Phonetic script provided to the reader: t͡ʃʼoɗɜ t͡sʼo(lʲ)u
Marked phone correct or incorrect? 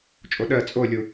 correct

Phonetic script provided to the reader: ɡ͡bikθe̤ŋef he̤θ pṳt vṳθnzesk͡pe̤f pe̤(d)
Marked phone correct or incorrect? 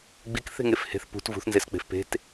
incorrect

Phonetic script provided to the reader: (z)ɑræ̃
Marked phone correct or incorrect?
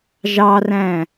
incorrect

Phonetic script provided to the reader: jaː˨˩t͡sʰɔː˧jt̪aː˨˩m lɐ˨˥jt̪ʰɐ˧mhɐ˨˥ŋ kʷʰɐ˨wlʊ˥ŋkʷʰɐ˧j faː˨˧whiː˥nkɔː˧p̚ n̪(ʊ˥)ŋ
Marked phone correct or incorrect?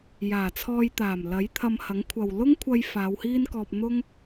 correct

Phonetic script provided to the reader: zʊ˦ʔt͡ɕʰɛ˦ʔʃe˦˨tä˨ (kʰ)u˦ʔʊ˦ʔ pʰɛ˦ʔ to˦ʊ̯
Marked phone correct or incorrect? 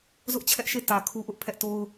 correct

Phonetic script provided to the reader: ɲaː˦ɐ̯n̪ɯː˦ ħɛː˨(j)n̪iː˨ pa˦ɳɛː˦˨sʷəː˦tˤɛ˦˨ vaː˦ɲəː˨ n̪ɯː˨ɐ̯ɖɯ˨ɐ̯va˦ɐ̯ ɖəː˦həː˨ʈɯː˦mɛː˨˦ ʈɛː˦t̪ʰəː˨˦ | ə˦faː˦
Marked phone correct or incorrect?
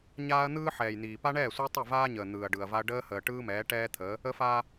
correct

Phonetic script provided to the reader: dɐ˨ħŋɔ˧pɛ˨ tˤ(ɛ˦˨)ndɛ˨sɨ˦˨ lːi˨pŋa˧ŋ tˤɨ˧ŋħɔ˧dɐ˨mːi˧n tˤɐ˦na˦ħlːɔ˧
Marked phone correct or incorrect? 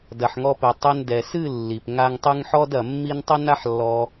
incorrect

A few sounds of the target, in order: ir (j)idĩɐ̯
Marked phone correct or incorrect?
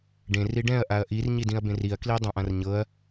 incorrect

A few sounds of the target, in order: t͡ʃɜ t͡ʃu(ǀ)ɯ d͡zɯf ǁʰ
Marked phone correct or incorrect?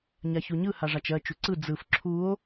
correct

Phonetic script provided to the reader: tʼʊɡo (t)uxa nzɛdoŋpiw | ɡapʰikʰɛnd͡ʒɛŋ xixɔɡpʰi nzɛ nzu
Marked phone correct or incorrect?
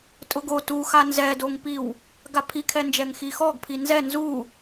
correct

